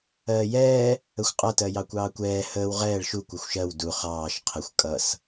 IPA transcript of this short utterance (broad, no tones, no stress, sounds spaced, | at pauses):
ɜː j ɛː | ə xʷ qʼ ʌ t ɜ j ɑ kʷ ɑː kʷ ɛː h əː w ʁ ɛː ɭ ʃ u kʷ ɛ xʷ ʃ ɜ w d u χ ɑː ʃ qʰ ɪ xʷ kʼ ʌ s